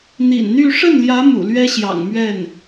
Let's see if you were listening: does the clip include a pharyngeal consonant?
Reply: no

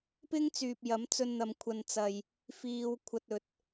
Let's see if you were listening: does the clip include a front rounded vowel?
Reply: yes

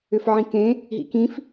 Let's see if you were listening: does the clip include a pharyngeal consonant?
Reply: yes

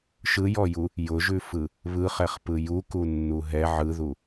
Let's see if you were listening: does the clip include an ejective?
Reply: no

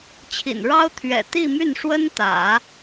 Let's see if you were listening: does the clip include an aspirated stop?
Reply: yes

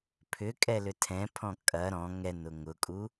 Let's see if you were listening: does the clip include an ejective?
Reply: yes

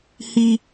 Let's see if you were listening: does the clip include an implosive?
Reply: no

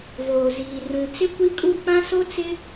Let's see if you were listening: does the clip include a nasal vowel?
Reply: yes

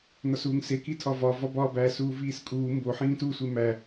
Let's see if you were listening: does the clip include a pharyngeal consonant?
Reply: yes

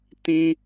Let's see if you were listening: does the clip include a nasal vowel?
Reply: yes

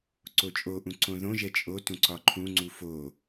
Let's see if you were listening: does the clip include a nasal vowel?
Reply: yes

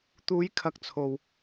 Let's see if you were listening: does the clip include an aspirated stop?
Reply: yes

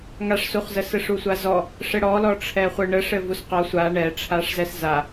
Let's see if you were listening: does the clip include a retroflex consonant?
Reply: yes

